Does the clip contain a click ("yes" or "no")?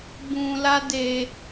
no